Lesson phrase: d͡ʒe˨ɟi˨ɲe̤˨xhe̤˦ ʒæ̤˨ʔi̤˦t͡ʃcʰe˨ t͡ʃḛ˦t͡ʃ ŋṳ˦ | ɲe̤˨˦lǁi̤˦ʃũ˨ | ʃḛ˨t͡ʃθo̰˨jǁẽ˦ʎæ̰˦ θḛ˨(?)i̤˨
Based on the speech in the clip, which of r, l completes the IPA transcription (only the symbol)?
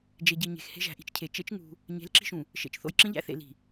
l